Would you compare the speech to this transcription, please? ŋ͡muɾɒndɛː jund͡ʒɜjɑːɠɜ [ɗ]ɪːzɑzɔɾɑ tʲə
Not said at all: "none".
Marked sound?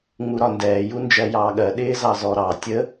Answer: ɗ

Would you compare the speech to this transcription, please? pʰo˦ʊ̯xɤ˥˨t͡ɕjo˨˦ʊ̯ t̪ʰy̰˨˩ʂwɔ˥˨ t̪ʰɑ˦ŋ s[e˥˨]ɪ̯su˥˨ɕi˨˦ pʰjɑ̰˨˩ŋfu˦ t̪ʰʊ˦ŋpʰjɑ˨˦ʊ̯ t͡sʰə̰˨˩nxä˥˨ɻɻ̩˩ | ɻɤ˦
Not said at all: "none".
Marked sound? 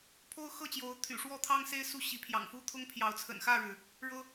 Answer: e˦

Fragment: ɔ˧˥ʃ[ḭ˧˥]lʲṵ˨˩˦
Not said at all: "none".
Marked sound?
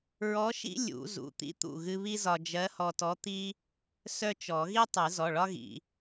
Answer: ḭ˥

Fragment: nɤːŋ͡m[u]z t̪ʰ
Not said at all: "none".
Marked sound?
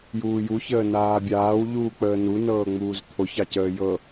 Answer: uː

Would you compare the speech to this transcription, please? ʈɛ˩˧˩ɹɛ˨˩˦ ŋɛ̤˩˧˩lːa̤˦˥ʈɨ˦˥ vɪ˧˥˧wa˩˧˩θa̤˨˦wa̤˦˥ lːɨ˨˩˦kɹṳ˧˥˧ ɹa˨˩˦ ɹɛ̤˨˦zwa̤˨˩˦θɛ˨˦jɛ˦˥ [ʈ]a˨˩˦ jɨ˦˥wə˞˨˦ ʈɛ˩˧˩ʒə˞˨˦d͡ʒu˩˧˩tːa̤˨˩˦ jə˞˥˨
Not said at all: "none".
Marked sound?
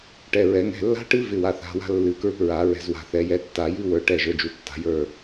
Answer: tː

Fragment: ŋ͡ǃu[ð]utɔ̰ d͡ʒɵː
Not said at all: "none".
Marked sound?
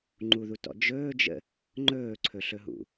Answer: ð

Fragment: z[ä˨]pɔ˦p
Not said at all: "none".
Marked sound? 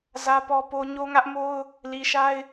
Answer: ä˦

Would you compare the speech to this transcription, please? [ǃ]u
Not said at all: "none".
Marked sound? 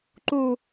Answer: ǃ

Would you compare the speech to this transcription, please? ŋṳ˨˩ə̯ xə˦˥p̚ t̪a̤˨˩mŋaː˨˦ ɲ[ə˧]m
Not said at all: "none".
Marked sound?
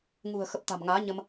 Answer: ə˧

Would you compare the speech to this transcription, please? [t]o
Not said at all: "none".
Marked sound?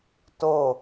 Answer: t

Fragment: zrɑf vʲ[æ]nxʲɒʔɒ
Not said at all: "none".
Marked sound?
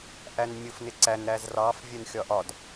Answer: ɛ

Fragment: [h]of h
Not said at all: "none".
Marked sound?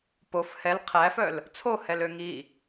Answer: p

